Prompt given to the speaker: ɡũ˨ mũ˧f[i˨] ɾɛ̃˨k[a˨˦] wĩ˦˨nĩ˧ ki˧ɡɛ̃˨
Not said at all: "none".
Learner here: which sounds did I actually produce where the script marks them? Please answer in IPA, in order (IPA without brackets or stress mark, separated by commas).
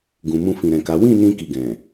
ĩ˨, a˨˦